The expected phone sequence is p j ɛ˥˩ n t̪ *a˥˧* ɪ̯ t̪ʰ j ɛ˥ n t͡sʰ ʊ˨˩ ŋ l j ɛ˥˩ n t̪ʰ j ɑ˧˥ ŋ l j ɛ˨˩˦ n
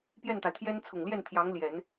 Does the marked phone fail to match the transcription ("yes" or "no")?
yes